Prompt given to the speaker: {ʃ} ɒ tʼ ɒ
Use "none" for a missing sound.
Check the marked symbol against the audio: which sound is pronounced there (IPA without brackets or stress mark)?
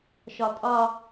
ʃ